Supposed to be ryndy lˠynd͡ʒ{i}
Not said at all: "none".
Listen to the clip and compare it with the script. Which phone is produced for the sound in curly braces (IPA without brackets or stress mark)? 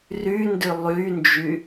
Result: y